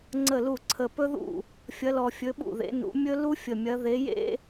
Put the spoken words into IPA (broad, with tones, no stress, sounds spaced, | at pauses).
ŋ͡ǀ ə˥˩ l u˥˩ ǀʰ ə˨˩ p ɵ˥ ð ṵ˥˩ | fʲ ɐ˨˦ l ɔ˨˩ fʲ ɵ˨˦ ɓ ṵ˥˩ ð ḛ˨˦ n ṵ˨˦ mʲ ɵ˥ l u˥ fʲ ə˨˩ mʲ ɐ˨˦ ð e˨˦ j ḛ˥